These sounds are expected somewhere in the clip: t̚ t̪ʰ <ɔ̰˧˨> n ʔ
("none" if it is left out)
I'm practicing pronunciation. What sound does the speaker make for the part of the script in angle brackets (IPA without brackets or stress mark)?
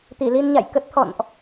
ɔ̰˧˨